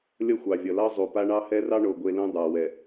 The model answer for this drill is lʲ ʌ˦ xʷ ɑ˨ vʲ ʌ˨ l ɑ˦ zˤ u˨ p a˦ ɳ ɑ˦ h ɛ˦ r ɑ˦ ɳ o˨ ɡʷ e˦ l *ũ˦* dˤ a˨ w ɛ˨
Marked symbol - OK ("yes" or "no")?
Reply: yes